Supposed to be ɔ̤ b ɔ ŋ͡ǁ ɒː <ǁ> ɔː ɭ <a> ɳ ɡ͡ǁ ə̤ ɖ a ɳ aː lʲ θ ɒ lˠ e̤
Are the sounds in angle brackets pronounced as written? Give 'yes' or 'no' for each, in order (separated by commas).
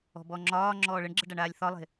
no, no